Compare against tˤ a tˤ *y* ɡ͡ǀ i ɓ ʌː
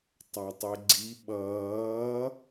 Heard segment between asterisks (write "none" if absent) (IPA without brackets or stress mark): e